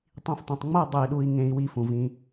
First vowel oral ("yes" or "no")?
no